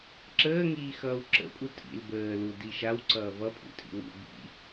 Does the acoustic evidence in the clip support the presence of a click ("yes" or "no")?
yes